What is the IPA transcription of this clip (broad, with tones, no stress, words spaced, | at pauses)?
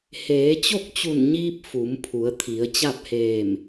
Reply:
heː˩˧t͡ɕo˥˨k̚t͡ɕu˧˩nɲiː˧p̚ fu˩˧mpʰu˩˧ə̯t̪ʰi˩˧ə̯ t͡ɕa˥˨p̚heː˧˩m